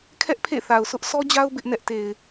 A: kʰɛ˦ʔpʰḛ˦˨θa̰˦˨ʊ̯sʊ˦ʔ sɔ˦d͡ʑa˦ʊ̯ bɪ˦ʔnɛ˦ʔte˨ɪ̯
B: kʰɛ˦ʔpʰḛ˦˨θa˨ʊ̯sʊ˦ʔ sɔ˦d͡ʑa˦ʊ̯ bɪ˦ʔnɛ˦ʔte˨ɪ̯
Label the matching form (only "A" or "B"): B